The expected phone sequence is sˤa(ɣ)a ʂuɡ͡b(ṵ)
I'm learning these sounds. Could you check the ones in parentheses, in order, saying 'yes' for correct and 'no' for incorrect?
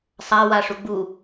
no, no

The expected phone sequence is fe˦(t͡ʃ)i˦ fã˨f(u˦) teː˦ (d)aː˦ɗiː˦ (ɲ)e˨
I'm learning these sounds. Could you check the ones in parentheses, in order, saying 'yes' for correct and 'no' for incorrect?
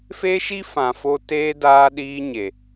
no, no, yes, yes

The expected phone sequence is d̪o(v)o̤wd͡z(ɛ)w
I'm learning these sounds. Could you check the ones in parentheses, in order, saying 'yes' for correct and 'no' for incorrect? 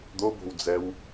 no, yes

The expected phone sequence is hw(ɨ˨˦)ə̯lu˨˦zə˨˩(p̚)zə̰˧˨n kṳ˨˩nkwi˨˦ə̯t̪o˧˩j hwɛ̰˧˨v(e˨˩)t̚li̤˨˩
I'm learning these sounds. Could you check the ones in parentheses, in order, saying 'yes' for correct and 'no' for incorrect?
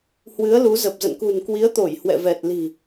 yes, yes, no

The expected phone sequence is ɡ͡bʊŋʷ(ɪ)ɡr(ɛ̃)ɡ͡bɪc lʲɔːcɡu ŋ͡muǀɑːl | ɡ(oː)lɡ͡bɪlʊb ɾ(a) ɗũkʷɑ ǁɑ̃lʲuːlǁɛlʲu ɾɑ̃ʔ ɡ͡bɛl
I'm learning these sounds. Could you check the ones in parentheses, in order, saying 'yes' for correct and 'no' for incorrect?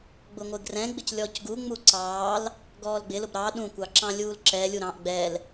yes, yes, no, no

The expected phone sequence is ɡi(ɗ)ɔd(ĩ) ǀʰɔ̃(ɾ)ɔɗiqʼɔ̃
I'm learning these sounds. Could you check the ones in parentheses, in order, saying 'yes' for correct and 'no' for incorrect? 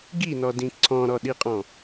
no, yes, yes

